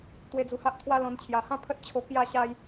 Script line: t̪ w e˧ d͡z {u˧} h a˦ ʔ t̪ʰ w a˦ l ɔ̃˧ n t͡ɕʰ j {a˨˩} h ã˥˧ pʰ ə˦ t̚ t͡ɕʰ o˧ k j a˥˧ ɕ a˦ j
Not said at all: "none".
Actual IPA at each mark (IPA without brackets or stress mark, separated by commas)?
u˧, a˨˩